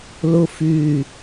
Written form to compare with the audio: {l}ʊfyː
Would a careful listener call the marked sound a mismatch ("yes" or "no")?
no